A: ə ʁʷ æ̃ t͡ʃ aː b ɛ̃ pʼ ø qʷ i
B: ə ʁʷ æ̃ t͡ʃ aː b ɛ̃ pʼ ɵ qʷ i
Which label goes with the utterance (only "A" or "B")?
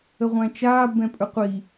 B